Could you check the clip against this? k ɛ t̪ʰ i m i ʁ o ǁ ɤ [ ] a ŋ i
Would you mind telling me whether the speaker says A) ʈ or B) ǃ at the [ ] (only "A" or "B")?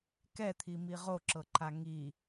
B